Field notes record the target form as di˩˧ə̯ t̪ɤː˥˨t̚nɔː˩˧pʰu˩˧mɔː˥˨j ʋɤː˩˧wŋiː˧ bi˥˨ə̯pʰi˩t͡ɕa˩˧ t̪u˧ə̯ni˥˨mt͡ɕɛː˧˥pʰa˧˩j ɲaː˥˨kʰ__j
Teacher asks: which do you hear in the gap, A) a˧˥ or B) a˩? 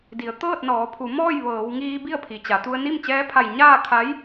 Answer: A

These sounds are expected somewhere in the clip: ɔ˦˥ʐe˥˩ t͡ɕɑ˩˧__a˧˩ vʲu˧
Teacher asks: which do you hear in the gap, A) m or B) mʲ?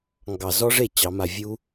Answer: A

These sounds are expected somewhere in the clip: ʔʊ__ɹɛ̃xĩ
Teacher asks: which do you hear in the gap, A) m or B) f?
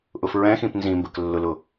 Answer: B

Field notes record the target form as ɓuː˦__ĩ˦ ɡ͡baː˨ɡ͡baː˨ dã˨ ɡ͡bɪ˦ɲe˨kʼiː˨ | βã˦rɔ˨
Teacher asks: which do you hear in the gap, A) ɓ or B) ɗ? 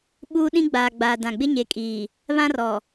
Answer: B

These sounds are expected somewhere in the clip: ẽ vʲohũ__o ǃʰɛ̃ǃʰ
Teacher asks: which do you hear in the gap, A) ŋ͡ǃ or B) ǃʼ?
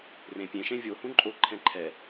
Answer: B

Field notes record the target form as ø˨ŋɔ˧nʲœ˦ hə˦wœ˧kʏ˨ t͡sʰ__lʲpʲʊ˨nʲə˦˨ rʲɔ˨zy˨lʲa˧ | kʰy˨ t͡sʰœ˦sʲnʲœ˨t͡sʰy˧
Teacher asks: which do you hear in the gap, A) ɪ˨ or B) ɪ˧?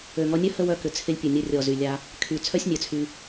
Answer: B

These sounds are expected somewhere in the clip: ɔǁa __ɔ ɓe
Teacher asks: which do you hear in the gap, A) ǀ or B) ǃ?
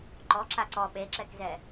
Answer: A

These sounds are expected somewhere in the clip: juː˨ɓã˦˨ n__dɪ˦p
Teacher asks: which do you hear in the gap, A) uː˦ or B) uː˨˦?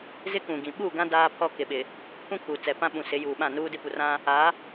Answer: A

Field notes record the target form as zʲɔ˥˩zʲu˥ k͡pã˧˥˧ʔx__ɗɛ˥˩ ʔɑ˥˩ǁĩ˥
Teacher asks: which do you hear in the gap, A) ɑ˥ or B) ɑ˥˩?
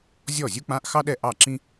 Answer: A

